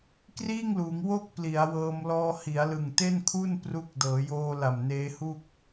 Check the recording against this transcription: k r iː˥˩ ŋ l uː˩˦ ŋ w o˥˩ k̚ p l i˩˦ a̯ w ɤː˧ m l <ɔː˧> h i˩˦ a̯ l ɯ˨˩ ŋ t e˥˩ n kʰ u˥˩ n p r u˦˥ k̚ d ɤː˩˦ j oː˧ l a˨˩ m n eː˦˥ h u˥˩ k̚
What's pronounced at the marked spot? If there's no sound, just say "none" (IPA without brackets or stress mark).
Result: ɔː˧